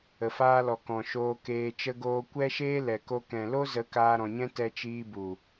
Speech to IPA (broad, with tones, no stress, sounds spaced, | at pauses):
ə˨ f aː˧ l ɔ˨ k ɔ̃˨ ʃ oː˧ k eː˧ t͡ʃ ə˧ ɡ oː˧ kʷ ɛ˦ ʃ eː˦ l ɛ˨ k o˧ k ɛ̃˨ l o˦ z ə˨˦ k aː˧ ɾ ɔ̃˨ ɲ ɛ̃˦ t ɛ˧ t͡ʃ iː˧ b u˨